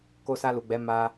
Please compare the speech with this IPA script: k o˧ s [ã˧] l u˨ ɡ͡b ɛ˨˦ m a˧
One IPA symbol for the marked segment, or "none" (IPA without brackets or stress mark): a˧